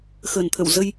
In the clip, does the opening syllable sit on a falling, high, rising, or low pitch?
low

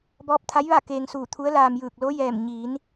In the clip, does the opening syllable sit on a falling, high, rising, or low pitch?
rising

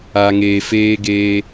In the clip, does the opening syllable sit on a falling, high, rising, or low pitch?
low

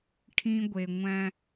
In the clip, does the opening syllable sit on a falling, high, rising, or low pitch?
high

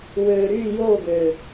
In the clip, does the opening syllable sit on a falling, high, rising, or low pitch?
low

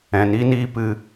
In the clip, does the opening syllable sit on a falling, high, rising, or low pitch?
low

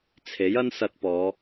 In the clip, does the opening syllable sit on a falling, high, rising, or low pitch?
rising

